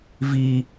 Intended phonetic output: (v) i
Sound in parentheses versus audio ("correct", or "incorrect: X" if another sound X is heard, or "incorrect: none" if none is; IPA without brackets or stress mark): correct